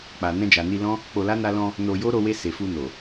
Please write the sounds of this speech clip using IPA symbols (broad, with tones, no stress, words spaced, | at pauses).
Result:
k͡pa˨ nɛ̃˧d͡ʒa˨ni˧lɔ̃˦ | k͡po˧la˦ na˧lɔ̃˧ | no˧jo˦ ɾo˧we˧ se˨fu˧no˨